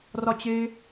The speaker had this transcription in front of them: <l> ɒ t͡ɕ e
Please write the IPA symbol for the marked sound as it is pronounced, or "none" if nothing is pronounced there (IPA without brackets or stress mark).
r